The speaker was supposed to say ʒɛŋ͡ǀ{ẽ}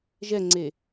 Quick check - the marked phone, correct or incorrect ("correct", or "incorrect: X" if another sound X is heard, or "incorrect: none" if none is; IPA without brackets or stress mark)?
incorrect: e